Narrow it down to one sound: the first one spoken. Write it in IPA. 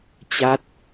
t͡ɕ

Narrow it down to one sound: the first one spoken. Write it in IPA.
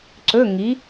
ǀ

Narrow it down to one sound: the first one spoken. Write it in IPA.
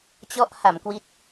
t͡ɕ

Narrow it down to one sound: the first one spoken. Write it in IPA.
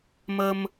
m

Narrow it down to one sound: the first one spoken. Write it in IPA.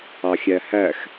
ɑ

